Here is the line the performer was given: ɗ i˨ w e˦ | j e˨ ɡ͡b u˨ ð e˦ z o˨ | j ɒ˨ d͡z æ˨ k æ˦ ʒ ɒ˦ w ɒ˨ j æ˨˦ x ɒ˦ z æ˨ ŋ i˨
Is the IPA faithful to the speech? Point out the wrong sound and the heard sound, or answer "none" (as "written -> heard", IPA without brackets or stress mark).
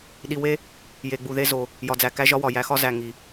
none